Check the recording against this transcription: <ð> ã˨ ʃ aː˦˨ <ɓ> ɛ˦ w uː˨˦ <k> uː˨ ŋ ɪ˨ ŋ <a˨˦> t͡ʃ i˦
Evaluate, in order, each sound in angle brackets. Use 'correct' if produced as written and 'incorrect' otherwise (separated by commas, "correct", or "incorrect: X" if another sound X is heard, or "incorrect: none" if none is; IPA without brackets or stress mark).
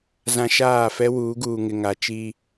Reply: incorrect: z, incorrect: f, incorrect: ɡ, correct